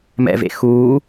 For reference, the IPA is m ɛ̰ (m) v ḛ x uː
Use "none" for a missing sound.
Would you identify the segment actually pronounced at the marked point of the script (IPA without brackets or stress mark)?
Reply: none